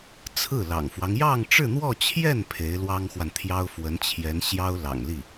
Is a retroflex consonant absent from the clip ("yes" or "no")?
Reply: no